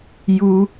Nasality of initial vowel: oral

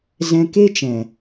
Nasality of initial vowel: nasal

